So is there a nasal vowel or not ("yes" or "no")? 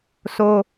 no